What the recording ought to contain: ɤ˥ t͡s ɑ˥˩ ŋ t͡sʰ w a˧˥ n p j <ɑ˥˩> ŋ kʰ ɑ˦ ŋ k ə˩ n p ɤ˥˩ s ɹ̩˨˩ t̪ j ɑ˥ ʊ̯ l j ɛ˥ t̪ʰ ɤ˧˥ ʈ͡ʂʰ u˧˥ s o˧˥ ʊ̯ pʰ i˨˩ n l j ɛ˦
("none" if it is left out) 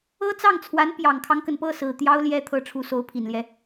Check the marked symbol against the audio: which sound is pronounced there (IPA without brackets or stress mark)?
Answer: ɑ˨˩